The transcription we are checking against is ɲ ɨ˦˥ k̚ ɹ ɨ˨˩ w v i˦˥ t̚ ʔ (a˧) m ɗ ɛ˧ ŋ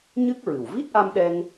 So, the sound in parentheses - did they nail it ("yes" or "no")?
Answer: yes